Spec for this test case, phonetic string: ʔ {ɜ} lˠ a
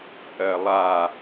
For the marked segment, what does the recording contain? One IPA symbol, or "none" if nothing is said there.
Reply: ɜ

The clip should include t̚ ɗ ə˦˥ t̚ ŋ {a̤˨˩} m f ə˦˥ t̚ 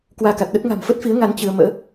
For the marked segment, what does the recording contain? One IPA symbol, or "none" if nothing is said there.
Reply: a̤˨˩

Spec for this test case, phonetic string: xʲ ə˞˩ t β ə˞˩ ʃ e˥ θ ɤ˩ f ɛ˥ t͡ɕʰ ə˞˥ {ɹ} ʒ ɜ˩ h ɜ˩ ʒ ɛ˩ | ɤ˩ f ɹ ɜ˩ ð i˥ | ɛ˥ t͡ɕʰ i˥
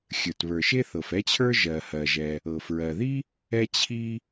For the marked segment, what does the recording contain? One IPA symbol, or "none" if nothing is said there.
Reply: none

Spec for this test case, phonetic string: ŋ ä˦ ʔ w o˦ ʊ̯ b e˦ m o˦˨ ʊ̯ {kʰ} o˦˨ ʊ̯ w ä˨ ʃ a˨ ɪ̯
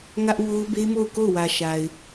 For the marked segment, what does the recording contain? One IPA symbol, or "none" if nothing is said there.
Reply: k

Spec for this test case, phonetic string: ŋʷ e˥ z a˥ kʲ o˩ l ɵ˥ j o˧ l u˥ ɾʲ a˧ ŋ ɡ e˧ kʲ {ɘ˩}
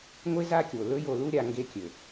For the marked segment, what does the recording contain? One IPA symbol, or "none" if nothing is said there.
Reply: ɘ˩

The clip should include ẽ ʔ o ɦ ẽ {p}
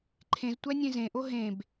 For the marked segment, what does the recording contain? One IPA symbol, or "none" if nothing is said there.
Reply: b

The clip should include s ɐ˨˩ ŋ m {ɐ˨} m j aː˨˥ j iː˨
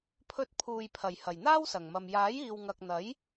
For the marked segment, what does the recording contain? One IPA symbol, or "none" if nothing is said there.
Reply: ɐ˨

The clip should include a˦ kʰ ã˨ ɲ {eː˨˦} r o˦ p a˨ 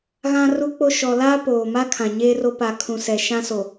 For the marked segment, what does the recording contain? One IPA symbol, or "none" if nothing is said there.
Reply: eː˦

